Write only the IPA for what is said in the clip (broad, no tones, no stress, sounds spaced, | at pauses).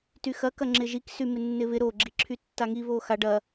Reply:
t y x ɐ k ɐ ŋ͡ǁ ɪ ʒ i k s y m ɪ nː ɪ β ɪ ɾ o ɡ͡ǁ i ǁʰ y tː a ŋ i β o x a ɖ ɐ